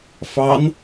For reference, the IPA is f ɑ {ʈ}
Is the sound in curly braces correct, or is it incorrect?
incorrect